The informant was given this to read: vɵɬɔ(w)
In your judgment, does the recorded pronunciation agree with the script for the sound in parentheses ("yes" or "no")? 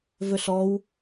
yes